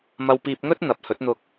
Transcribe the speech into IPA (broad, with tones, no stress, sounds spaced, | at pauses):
m ɐ˧ w p iː˧ p̚ ŋ ɵ˥ t̚ n̪ ɐ˨˥ p̚ h ɵ˨˥ t̚ n̪ ʊ˧ k̚